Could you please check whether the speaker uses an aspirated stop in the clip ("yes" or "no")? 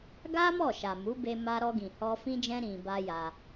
no